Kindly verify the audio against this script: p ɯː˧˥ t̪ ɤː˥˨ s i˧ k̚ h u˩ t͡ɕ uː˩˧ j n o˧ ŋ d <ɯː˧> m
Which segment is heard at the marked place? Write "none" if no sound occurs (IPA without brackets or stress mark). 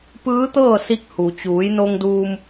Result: uː˧